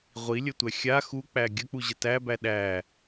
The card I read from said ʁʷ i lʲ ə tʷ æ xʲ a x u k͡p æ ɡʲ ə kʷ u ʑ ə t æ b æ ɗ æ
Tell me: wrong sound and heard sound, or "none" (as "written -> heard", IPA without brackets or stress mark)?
kʷ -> k͡p